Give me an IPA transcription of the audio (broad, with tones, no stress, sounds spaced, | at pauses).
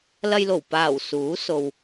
l ɐ˧ j l o˨˩ w p aː˨˩ w s uː˨˥ s o˨ w